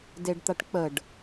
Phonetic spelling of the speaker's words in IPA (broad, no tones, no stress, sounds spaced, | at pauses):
d e ɖ t̪ a ʈ k͡p ə ɖ